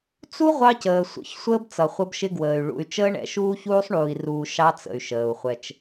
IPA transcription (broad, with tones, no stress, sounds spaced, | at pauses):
t͡s u˦ ʁʷ ɑ˦ c əː˨ sʷ ə̰˨˦ ç sʷ əː˦ b t͡s ʌ˨ χʷ ʌ˦ b ʃ ɪ˦ ɡ w əː˨ y̯ ɭ ṵ˨ y̯ t͡ʃ əː˦ ɳ ɛ̰˨ ʃ uː˦ ç uː˦ sˤ ɳ uː˨ i̯ r uː˨ ʃ ɑ˦ t͡s ə̰˨ y̯ ʃ əː˨ u̯ χʷ ɛ˦ t͡ʃ